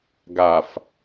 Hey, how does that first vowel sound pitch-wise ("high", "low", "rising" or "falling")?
low